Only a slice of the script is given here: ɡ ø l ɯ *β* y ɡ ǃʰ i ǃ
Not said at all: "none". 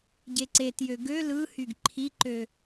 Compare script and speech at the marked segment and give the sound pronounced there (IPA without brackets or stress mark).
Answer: h